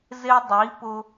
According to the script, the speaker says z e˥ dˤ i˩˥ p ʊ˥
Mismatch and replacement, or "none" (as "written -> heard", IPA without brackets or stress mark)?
none